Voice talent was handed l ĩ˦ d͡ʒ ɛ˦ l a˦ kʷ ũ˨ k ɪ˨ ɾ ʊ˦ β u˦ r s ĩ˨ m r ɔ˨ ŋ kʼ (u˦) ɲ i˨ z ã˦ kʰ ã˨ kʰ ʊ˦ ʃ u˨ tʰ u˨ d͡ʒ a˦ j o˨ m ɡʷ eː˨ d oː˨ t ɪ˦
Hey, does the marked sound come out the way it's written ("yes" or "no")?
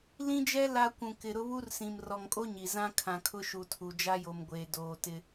no